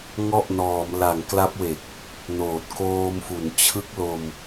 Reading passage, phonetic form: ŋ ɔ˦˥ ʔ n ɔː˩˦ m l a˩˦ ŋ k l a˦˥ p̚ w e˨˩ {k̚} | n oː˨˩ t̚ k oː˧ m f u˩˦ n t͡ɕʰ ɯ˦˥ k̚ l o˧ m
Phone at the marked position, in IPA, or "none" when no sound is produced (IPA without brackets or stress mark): k̚